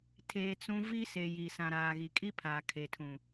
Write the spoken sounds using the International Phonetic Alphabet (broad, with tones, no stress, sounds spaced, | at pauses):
tʰ eː˨ t͡s ũ˦ v i˦ s e˨ j i˨ s ã˨ ɾ aː˨ ɣ i˨ kʼ i˦ pʰ aː˨ kʰ e˨ tʰ ũ˨